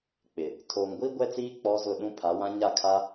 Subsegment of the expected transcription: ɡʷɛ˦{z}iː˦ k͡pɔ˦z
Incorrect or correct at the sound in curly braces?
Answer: incorrect: t͡s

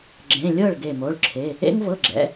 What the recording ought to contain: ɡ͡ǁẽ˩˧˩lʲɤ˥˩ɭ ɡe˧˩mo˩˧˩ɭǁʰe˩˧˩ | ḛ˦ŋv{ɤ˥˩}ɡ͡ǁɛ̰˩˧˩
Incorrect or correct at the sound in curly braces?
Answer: incorrect: ɤ˩˧˩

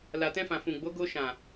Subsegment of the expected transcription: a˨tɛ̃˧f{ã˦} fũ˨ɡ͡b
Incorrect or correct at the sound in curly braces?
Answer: incorrect: ã˨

